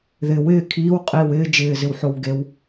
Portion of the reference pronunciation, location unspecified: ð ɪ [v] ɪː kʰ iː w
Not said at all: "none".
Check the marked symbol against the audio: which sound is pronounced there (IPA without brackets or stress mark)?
w